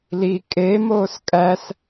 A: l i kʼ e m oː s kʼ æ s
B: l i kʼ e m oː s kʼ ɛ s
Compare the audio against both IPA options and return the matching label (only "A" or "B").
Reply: A